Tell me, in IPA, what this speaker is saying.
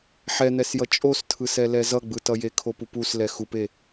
ħ ɛ n̪ ɛ s j ʌ t͡ʃʼ o s tʰ ɯ s ɛ l ɛ z ʌ ɡ͡b ɯ t ʌ j e kʰ o p u p u s l ɛ x u p e

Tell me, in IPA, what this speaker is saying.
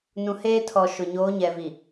n ũ˨ h eː˦ tʰ ɔ˨ ʃ ʊ˨ ɲ oː˨˦ ɲ ɛ˨ v i˨

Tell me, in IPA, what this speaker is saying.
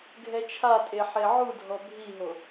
ɡʱ ɛ t͡ʃʰ a tʼ e ħ e ʕ u dʱ ɔ bʱ i ɦ o

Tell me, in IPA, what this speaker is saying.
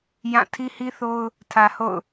j ã˦˨ tʰ i˦ h i˦ θ o˦ ʊ̯ | tʰ ä˨ h o̰˦˨ ʊ̯

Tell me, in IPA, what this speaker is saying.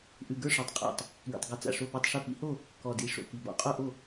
ʔ ʉ˨˩ ɡ ə˞˥˩ ʂ ɔ˨˩ tˤ qʼ a̰˨˩ tˤ | ɡ ḭ˨˩ tˤ ɡ ʉ˨˩ t͡s a̰˨˩ ʂ o˥˩ p ə˞˥˩ tˤ ʂ ʉ˥˩ p ḭ˨˦ h o˥˩ | k ɔ˨˩ d i˨˩ ʂ o̰˨˩ k i˨˩ b ɔ̰˨˩ qʼ o˥˩ ʔ o˥˩

